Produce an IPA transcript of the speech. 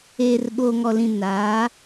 eː˨ r ɓ oː˨ ŋ ɔ˨ l ĩ˨ n aː˨˦

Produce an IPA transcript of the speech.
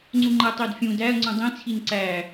ŋ͡ǀ u ŋ͡ǃ æ tˤ e d fʲ ũ d æ ɐ̯ ŋ͡ǀ ũ dˤ ẽ t͡sʰ i n ǀ æ

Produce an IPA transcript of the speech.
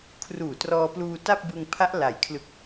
kʰ r uː˨˩ t r ɔː˧ p l uː˧ t a˥˩ p̚ b ɯ˧ ŋ pʰ a˦˥ ʔ l a˩˦ j kʰ l ɯ˨˩ k̚

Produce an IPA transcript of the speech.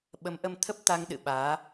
ɓ ə˨˦ m ʔ ə˧ m t̪ʰ ə˦˥ p̚ t̪ a˧ ŋ ɗ ɨ̰˧˨ ɓ aː˨˦

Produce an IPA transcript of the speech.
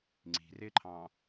ŋ͡ǀ i̤ r ɪ ǃʰ ɑ̃

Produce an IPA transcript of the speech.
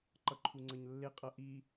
ǃ ʌ ǃʰ u ŋ͡ǀ ʌ ɲ lː e qʼ ʌ ʔ i

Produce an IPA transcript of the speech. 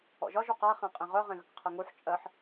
ɔ̰ ʒ ɒ ʒ u q a χ ẽ qʼ ẽ ʁ œ ʁ ẽ ɣ ə k qʰ ə ŋ u ħ t͡ʃʼ ɜ ħ

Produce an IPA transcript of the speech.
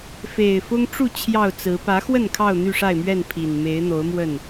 f e˨˩ ɪ̯ f ʊ˦ ŋ ʈ͡ʂ u˥˨ t͡ɕʰ j ɑ˥˨ ʊ̯ t͡s ɹ̩˨˦ p ä˨˦ x w ə˥˨ n kʰ ɑ˥˨ ʊ̯ n̪ y˥˨ ʂ a˥˨ ɪ̯ m ɥ ɛ˥˨ n pʰ i˨˩ n m e˨˦ ɪ̯ n̪ o˨˦ ʊ̯ m w ə˥˨ n

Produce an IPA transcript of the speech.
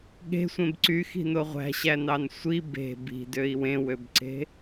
ɠ e̤ sʷ ẽ b ǀ y x i̤ n o ʁʷ æ̤ ɕ æ n ɑ n sʷ i b e̤ b i̤ d ø i̯ w ẽ w ø b ǀ e̤

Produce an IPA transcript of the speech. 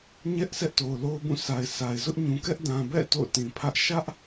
ɲ ɛ˦ ʔ sʰ ɛ˦ ʔ t o˨ ʊ̯ l o˦ ʊ̯ b ũ˦˨ s a˨ ɪ̯ s a˨ ɪ̯ z ʊ˦ ʔ ɲ ũ˨ k ɛ˦ ʔ d ã˨ b ɛ̰˦˨ t o̰˦˨ ʊ̯ t ĩ˨ pʰ ä˦ ʔ ʃ ä˦ ʔ

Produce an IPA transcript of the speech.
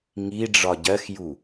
ŋ i ɖ͡ʐ ɒ ɟ ɜ x j u

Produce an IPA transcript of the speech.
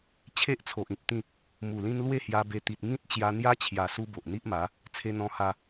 t͡ɕʰ e˦ ʔ t͡sʰ o˨ ʔ ĩ˨ p̚ t̪ ĩ˥˧ | m u˨˩ l ĩ˦ n l w e˥˧ h j a˧ b e˧ t̪ i˨ t̚ ŋ ĩ˦ t̚ t͡ɕ j a˧ n̪ j a˦ t͡ɕʰ j a˨˩ s u˧ b o˨ ʔ n̪ i˦ ʔ m a˨˦ | t͡sʰ e˧ n̪ ɔ̃˧ h a˧

